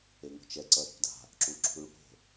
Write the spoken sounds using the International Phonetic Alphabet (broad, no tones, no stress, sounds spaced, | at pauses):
e ŋ o̤ t͡ʃ ɛ ǀ ʌ ɾ i̤ p d a̤ | ǁ u ǁ ṳ ɹ p o̤